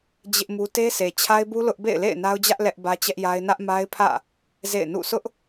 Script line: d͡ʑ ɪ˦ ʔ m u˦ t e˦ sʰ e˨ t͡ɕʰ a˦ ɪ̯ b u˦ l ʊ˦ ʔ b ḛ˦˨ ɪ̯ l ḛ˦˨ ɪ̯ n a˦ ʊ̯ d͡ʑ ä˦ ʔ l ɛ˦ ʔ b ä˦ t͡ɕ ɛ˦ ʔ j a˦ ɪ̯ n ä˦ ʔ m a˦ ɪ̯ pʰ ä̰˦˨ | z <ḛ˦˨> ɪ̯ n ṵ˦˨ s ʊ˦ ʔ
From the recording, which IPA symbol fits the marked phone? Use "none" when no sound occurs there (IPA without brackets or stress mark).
ḛ˦˨